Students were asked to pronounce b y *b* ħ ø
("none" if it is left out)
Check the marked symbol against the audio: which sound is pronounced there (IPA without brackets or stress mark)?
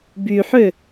none